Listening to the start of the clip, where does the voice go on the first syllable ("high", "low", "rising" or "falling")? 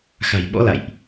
low